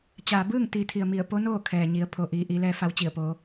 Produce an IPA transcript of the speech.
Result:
t͡ɕ aː˩ b ɯː˥˨ ŋ t̪ iː˩˧ t̪ʰ i˩ ə̯ m i˧˩ ə̯ p o˧˥ n oː˥˨ kʰ ɛː˩ ɲ i˩˧ ə̯ pʰ o˩ ʔ iː˩˧ ʔ i˩˧ l ɛː˧˥ f a˧ w t͡ɕ i˧˩ ə̯ p oː˩˧

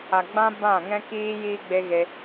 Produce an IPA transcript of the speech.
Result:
a˨ ɡ͡b ã˦ b ã˦˨ ŋ ɛ̃˦ k iː˦ j iː˦ ɡ͡b e˦ ɣ e˧

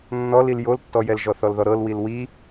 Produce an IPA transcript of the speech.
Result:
nː ɔ l i l j o l tː ɔ j ɛ l ʒ ɔ θ ɔ l ð ɔ ɾ ɤ l w i l w i

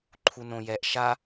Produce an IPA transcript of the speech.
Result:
ǃʰ u n õ j ɛ ʔ ʃ a

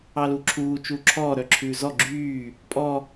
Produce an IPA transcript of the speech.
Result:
ɑ l u ǁʰ uː t͡ʃ uː ǁʰ ɔː ɾ œ ǁʰ ʉː z ɔ ɡ͡ǁ yː | pʼ ɔ

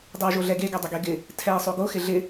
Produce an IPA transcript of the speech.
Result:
dˤ ɛ w ʒ o ɮ ɛ ɡ e ɡ ɛ dˤ ə ɡ e ɡ ɪ | tʰ ɛ ɪ̯ sˤ o ɡ o x ɪ ɮ ɪ

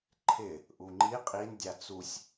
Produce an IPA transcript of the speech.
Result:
ǃʰ ɪ | ʔ u ŋ͡ǃ i qʼ i n dʲ a t͡s u sʲ

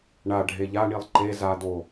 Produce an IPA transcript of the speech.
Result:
ɳ a ɖʱ e ʎ a ɳ i lˠ ǃ e z a d o

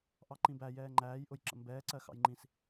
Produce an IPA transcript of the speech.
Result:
ʔ ɑ ǃ ĩ b æ j ɛː ŋ͡ǃ æː j ʔ ʊ j ǁ ə̰ m b ɛː ǀ ɜ x ɑ̰ j ŋ͡ǃ ĩ s

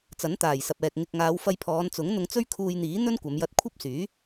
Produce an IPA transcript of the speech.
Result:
t͡s ɐ˨˥ n t̪ aː˨˩ j s ɐ˨ p̚ ɛː˨ k̚ ŋ ɪ˨ k̚ ŋ aː˨˧ w f ɐ˧ j pʰ ɔː˨˧ n t͡s ʊ˨˥ ŋ n̪ ʊ˧ ŋ t͡s ɵ˥ ɥ kʰ uː˧ j n̪ iː˨˥ n̪ ɵ˥ n kʷ ɐ˨˧ m j ɐ˧ t̚ kʷʰ ɐ˥ p̚ s yː˨˥

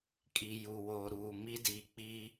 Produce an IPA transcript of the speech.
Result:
kʼ i˨ j u˨ w oː˨ ɾ uː˨ m i˦ d iː˨ k͡p iː˦

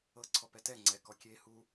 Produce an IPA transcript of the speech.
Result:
ɤ ǀʰ ɔ p ɛ t ɛ ŋ͡ǀ ɛ k ɔ kʲ e h u

